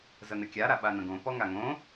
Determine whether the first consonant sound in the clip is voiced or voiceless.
voiced